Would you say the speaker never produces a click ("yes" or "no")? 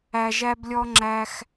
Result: no